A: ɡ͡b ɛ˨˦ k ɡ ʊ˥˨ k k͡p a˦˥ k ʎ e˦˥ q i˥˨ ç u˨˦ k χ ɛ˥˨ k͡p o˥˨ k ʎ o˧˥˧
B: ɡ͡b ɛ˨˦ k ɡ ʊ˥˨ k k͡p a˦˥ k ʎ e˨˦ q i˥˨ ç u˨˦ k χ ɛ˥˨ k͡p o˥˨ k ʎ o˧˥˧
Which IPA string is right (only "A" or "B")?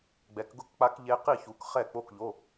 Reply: A